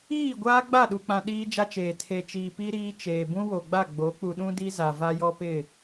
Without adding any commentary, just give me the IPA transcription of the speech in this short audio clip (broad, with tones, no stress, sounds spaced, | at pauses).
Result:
iː˦˨ ɡʷ aː˦ ɡ͡b a˦˨ ɗ u˨ k͡p ã˨ ɗ iː˦ d͡ʒ a˦ t͡ʃ eː˨ tʰ e˨ t͡ʃ iː˨ p i˦ ɾ iː˦ t͡ʃ eː˨ b ũ˦ w o˨ ɡ͡b a˦˨ ɡ͡b o˨˦ k͡p u˨ ɗ ũ˦ d i˦ z a˨ v a˦ j ɔ˦ p ɪ˦˨